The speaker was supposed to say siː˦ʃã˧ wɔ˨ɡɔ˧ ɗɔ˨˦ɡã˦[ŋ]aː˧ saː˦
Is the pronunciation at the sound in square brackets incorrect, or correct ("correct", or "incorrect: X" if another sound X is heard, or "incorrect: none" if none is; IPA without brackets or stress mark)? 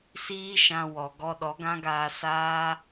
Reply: incorrect: ɡ